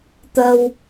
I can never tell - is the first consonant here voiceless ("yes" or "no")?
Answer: yes